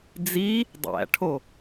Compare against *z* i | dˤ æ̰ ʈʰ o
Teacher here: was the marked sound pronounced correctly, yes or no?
no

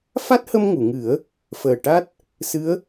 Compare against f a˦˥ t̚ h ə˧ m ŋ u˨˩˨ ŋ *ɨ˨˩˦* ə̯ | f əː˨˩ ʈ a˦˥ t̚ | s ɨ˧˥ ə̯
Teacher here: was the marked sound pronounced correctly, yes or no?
yes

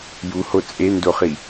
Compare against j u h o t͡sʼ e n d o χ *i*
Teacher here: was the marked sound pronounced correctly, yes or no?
yes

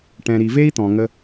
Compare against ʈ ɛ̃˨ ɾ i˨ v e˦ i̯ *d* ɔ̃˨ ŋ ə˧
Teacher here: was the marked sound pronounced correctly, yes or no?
no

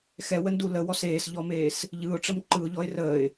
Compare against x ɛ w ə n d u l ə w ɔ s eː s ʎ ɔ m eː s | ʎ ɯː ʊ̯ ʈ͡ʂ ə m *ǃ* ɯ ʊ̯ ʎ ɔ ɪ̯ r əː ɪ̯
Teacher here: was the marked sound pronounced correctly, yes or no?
yes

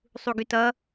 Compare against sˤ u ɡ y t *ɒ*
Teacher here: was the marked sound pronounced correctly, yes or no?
no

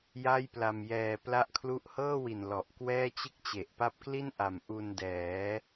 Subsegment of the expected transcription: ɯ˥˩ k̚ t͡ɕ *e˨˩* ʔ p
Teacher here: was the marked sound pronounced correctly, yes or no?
yes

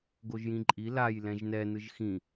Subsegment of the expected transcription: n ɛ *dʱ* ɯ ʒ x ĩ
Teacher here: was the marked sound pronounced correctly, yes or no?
no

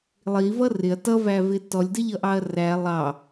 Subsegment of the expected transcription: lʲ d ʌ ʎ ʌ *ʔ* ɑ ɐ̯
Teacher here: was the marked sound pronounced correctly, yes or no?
yes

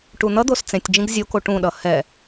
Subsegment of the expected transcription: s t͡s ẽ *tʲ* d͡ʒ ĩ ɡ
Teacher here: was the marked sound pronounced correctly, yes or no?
yes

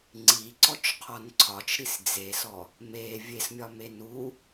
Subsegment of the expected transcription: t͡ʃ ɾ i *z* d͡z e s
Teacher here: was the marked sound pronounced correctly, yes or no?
no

